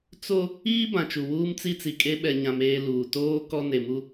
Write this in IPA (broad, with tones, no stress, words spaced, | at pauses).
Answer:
t͡so˦ | iː˦ bã˨t͡ʃu˨ wuː˦mt͡si˦t͡si˨kʼe˦ ɓɛ˨ ɲã˦meː˦ luː˨ toː˦ kɔ˦ne˨mu˦